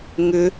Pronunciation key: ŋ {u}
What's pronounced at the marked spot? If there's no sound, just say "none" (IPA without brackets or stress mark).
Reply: ʏ